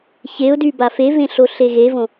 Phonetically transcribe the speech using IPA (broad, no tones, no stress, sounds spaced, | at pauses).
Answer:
ç e ʊ̯ d y b a f e v ẽ ɬ o ɬ e ɣ e v õ